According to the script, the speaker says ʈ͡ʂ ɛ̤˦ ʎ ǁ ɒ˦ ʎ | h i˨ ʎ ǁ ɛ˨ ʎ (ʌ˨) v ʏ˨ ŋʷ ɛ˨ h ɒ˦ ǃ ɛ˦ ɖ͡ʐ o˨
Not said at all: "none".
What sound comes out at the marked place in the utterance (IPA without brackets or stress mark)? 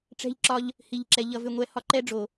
ʌ˨